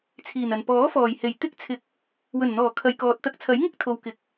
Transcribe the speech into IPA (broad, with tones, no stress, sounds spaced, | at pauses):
t͡sʰ iː˨˩ n ɐ˨˩ n p ɔː˨˥ f ɔː˨˩ j h e˨˩ j t̪ ɪ˥ k̚ t͡sʰ ɪ˧ k̚ | w ɵ˨˩ n n̪ ɔː˨˩ kʰ ɐ˨ j k ɔː˨ t̚ t̪ ɐ˧ k̚ t͡sʰ ɐ˨˥ j ŋ ɪ˥ k̚ t̪ʰ o˨ w k ɪ˨ k̚